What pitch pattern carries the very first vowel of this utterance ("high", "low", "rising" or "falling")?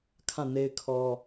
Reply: falling